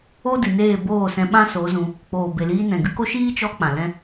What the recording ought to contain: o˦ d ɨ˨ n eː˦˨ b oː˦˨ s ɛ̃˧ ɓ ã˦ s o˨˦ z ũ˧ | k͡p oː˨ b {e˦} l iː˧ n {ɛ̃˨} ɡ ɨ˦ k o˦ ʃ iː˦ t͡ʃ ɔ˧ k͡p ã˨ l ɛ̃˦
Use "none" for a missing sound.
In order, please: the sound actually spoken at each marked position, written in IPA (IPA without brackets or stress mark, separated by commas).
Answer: e˨, ɛ̃˨